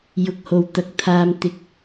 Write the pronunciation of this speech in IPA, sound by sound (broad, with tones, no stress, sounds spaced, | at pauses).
j ʊ˧ k̚ h o˨ w t̪ ɐ˨˥ k̚ t̪ʰ aː˧ m t̪ ɪ˥ k̚